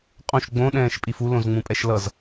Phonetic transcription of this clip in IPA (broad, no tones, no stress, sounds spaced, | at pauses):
qʼ õ ʃ ɡ͡b õ ɗ ɛ̃ː ʃ pʼ i f u l õ z ŋ͡m ũ pʼ ɛ ʃ l ʌ z